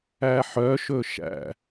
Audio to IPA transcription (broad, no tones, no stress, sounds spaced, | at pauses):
æ ħ œ ʃ ɵ ʃ æ̰